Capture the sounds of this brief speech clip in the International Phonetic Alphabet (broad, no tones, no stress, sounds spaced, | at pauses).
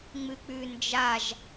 ŋ͡m ɨ k͡p ʉ n d͡ʒ a ʒ